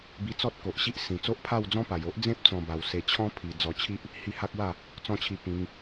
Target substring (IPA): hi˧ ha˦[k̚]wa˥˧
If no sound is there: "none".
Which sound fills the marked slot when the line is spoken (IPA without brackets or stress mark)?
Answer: k̚